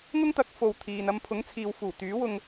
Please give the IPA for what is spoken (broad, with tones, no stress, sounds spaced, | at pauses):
ŋ ʊ˥ ŋ t̪ ɐ˨˥ k̚ f o˨ w t̪ʰ iː˨ n ɐ˧ m pʰ ʊ˨˥ ŋ t͡sʰ iː˨ w f uː˨˩ t̪ yː˨˥ w ʊ˧ ŋ